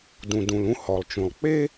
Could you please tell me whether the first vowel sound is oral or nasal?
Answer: nasal